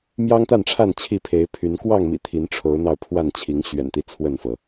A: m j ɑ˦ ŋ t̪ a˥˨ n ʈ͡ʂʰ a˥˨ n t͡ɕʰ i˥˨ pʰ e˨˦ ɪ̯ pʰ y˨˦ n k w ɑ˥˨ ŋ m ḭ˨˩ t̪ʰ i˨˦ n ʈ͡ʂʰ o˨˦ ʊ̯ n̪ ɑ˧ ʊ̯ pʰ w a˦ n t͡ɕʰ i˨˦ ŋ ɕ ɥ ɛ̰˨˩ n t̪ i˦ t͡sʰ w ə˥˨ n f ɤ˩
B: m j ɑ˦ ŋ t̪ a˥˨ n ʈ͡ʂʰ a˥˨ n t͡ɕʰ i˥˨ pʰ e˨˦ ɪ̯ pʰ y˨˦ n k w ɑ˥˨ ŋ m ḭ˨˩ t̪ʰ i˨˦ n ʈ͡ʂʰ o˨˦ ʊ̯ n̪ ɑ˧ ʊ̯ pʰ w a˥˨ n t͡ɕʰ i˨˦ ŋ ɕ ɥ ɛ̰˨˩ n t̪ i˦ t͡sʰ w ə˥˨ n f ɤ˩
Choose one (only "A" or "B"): B